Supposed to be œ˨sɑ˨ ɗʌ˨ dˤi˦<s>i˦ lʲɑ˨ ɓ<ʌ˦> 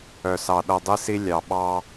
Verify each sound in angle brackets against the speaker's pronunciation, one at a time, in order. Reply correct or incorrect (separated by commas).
correct, incorrect